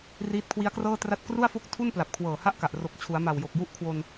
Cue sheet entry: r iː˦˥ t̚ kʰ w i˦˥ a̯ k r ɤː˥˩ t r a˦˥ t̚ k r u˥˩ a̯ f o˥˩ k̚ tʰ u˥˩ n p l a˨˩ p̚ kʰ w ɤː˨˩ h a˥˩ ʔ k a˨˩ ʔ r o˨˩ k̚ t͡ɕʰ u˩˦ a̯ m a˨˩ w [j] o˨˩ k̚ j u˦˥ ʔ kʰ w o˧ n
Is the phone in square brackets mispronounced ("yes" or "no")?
no